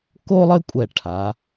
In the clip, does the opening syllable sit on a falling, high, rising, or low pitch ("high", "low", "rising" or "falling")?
high